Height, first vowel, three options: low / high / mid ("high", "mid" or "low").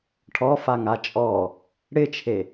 mid